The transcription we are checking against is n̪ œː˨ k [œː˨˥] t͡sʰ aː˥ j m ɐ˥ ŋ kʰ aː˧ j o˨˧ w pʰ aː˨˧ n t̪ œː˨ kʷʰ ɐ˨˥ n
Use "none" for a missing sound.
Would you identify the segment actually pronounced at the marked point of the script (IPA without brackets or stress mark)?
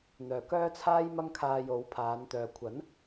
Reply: œː˥